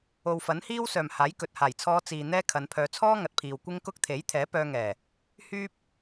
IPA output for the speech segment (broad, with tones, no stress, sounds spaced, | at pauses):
o˨ w f ɐ˨˥ n h iː˥ w s œː˨ m h aː˨˥ j k ɵ˨ t̚ h aː˨˩ j t͡sʰ ɔː˧ t͡s iː˨ n̪ ɛː˥ kʰ ɐ˨˧ n pʰ œː˧ t͡sʰ ɔː˥ ŋ ɐ˨ t̚ pʰ iː˨ w kʷ ɪ˥ ŋ k ʊ˥ k̚ t̪ʰ e˨˥ j t̪ʰ ɛː˨˥ p œː˧ ŋ ɛː˨˩ | h yː˥ p̚